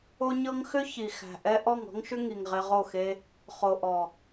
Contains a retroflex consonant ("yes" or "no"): no